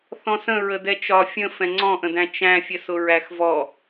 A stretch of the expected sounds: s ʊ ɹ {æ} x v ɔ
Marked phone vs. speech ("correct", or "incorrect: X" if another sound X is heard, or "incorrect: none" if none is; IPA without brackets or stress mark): correct